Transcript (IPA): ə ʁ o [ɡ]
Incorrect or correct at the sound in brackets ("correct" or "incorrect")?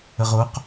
incorrect